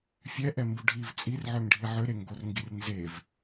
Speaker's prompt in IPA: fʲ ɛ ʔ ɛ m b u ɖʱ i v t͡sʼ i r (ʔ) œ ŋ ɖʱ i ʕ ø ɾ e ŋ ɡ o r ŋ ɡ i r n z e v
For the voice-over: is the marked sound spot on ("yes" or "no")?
no